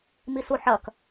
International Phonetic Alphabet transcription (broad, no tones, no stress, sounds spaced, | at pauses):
m i s u ħ ɐ k